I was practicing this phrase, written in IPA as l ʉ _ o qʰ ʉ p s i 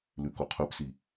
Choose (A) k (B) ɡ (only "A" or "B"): A